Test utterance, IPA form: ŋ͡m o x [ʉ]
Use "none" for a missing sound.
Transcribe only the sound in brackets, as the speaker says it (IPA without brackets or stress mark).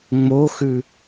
ʉ